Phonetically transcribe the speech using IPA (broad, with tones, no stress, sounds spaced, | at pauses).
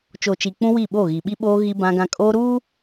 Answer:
t͡ʃ o˨ t͡ʃ i˨ k͡p ũ˦ w i˦˨ ɓ o˦˨ ɣ i˨ ɓ i˦ ɓ oː˦ ɣ i˦ b ã˦ ɡ ã˦ kʼ oː˦ ɾ uː˦